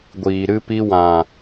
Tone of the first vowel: low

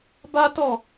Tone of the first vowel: high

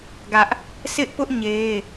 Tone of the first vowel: high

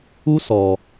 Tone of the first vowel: high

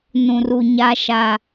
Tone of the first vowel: low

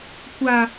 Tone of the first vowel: high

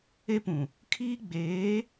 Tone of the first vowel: high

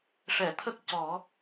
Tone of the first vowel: low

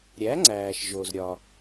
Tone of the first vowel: rising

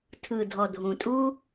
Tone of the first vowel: low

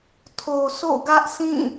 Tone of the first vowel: low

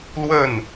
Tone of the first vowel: falling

